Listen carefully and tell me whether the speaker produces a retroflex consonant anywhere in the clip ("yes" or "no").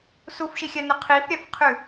no